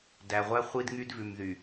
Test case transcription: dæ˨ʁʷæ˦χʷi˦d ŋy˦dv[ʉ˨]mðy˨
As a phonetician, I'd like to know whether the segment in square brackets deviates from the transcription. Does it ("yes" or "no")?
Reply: no